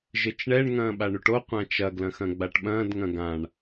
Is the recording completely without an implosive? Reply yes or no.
no